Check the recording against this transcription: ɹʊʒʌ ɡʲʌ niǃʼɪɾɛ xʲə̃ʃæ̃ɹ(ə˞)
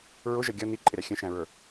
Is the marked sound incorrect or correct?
correct